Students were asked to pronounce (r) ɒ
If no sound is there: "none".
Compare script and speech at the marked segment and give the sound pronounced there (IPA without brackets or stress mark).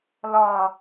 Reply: l